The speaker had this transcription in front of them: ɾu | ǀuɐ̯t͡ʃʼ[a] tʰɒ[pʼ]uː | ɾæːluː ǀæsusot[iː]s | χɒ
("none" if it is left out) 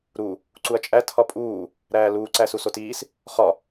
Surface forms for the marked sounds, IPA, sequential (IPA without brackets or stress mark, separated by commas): æ, pʼ, iː